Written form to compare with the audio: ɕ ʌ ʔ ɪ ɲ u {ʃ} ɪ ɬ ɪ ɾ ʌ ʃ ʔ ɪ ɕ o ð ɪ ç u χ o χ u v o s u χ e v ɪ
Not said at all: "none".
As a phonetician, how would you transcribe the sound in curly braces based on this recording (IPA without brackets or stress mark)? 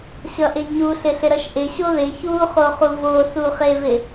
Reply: ɬ